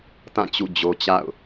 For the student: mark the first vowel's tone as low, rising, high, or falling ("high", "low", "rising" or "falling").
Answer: falling